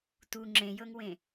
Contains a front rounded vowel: no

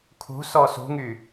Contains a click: no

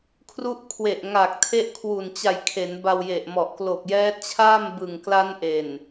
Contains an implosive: no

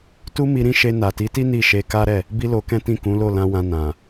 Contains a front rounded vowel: no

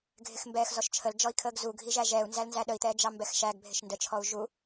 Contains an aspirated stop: yes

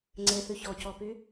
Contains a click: yes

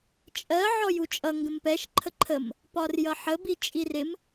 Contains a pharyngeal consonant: yes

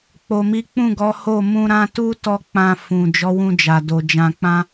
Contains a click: no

